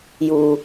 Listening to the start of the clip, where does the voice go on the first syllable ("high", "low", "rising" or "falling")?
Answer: low